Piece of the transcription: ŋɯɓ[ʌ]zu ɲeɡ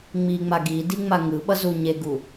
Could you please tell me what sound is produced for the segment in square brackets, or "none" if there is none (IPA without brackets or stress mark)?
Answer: ʌ